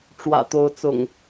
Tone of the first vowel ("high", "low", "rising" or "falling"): low